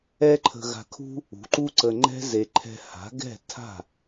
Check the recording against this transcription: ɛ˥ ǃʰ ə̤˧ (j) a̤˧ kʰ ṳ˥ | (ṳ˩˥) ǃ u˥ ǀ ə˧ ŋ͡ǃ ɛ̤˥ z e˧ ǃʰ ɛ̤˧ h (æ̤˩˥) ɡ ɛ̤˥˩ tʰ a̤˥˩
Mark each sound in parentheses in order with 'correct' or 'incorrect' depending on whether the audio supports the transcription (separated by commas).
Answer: incorrect, correct, incorrect